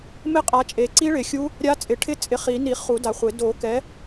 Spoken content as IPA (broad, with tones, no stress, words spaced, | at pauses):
mɪ˦˥qʼa˨˦t͡ʃʼe˨ ǀi˦˥ɭɪ˨˩˦xʲu˦˥ | ɾʲa˦˥t͡sʼɪ˨˩˦ʈʰɪ˥˧ t͡sʼɪ˨˦χi˨˩˦ni˨˩˦ χu˨˩˦da˨χʷɪ˨˩˦ do˨˩˦kɛ˨˦